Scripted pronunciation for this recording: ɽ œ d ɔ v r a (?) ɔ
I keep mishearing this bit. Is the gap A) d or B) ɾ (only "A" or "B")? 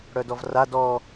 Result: A